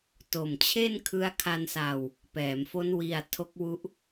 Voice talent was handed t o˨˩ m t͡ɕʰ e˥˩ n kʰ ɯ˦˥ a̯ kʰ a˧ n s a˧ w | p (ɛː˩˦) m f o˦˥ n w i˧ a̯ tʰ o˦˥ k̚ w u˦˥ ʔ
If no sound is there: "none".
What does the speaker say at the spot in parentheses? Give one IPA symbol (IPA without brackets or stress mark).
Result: ɛː˩˦